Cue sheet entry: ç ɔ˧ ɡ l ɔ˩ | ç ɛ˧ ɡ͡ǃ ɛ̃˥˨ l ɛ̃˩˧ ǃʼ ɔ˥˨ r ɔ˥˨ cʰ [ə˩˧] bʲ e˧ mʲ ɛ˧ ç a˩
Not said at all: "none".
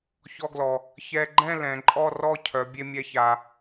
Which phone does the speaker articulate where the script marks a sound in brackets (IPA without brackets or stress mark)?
œ˩˧